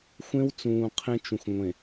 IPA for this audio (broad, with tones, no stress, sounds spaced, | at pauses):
xʷ ẽ˦ w t͡s ũː˨ qʰ ẽ˦ t͡ʃ ũ˨ x ŋʷ ẽ˨